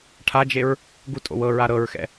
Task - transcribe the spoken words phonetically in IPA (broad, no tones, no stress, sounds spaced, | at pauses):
ʈʰ a d͡ʒ e ɹ | ɡ u tʼ o̰ w ɤ ɹ a ɾ ɤ ɹ x ɛ̰